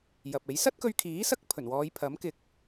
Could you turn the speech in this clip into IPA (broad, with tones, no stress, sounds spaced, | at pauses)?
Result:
j ɐ˨ p̚ e˨˥ j s ɐ˥ t̚ k ɵ˧ ɥ kʰ iː˨˥ s ɐ˥ k̚ pʰ ɵ˨˩ n w ɔː˨˧ j pʰ ɐ˨˥ m k ɪ˨ k̚